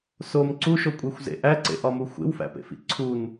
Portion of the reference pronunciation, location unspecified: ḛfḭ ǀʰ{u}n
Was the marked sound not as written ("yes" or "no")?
no